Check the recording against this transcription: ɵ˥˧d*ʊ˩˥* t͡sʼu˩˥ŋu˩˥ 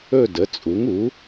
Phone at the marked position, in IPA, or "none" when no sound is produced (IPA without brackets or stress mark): ə˩˥